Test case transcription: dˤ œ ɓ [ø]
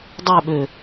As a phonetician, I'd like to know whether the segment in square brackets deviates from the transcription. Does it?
no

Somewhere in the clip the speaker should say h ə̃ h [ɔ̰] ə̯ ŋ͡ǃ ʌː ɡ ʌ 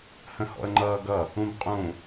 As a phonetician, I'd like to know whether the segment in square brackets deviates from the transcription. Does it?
no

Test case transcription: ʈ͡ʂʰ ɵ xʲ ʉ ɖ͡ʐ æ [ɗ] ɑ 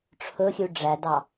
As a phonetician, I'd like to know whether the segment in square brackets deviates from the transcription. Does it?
yes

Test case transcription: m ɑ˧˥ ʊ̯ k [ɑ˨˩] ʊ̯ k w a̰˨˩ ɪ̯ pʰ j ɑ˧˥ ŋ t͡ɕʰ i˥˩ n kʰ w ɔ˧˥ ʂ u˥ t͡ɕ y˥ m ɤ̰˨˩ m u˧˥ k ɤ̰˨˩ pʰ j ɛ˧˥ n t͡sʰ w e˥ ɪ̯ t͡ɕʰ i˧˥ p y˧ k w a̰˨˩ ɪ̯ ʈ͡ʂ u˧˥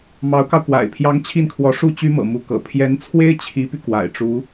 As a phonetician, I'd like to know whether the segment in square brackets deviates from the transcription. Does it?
yes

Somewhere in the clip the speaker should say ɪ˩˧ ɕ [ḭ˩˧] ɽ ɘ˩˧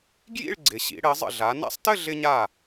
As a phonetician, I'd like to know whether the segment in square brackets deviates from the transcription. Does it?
no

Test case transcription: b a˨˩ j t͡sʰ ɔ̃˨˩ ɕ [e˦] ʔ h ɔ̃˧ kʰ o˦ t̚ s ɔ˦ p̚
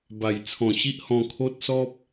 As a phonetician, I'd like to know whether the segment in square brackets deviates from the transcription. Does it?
yes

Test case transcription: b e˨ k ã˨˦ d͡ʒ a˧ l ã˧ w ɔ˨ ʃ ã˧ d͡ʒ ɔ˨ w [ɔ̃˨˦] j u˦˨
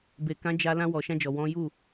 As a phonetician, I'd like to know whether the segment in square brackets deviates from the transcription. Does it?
no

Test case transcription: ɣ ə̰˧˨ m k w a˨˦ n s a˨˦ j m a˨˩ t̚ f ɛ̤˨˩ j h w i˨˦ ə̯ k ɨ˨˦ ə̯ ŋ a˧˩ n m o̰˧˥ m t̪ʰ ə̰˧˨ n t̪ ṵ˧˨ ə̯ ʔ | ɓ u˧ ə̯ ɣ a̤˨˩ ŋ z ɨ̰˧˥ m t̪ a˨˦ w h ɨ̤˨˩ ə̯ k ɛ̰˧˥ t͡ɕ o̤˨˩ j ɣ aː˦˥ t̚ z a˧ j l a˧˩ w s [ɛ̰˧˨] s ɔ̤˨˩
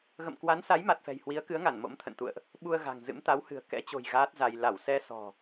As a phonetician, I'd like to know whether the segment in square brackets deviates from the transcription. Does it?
yes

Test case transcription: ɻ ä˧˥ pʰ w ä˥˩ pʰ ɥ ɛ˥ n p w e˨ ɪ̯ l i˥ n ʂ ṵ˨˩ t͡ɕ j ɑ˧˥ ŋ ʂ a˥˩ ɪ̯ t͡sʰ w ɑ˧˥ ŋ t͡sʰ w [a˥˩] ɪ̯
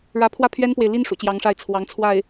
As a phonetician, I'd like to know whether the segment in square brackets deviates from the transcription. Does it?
no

